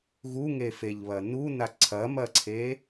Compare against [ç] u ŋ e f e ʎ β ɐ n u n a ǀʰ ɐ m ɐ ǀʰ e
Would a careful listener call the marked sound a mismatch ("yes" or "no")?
yes